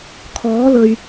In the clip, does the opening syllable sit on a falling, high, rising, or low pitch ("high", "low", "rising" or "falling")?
rising